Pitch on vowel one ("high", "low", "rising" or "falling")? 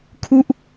falling